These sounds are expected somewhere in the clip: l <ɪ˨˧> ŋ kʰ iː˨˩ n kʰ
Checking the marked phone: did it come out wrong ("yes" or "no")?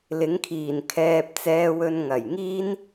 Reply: yes